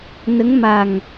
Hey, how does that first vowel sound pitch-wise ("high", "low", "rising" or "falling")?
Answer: rising